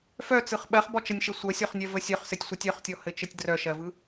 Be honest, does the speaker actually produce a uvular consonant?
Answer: yes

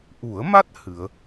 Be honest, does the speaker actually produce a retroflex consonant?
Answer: no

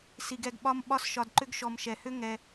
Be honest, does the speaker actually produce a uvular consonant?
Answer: no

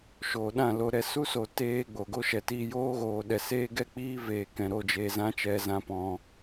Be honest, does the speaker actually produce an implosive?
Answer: yes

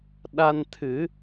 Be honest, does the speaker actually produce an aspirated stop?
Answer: yes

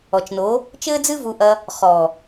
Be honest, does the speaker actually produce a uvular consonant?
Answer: yes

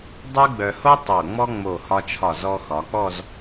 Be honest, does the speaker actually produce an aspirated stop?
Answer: yes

